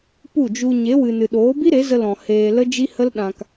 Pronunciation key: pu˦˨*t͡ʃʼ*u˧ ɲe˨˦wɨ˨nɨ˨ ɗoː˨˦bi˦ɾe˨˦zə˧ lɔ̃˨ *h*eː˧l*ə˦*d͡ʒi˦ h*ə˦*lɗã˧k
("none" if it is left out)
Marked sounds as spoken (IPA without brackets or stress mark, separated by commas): d͡ʒ, h, ə˦, ə˦